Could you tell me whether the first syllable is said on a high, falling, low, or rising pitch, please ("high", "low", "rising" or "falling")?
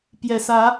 low